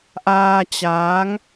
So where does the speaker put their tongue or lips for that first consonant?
throat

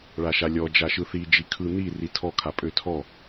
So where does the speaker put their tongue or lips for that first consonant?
retroflex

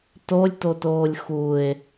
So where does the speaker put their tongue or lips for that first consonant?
tongue tip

